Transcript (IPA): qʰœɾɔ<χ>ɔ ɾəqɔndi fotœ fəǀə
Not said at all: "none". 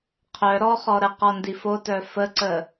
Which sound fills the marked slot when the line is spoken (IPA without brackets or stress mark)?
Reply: χ